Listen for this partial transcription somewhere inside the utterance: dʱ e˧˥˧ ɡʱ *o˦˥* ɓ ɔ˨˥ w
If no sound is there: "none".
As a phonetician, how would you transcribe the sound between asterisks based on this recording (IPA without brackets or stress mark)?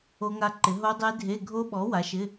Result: o˦˥